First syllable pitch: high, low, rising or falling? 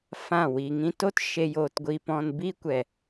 falling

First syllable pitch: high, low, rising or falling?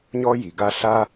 high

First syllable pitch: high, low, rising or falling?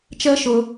high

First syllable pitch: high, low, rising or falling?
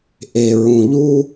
low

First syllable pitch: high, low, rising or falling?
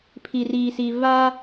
low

